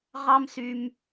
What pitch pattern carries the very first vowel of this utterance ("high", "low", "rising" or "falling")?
high